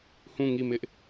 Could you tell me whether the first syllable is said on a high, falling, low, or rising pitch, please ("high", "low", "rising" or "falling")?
falling